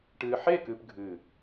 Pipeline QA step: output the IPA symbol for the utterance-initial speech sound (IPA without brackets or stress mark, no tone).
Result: ʈ